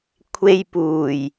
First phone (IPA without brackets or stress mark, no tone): kʷʰ